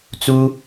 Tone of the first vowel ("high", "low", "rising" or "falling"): high